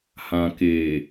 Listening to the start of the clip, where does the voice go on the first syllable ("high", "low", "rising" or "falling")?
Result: low